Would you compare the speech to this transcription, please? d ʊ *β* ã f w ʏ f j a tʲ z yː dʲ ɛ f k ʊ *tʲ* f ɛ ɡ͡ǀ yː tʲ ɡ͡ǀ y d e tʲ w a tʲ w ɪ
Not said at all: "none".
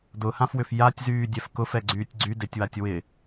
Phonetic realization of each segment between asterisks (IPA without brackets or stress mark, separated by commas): h, none